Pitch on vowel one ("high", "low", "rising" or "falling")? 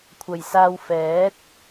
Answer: low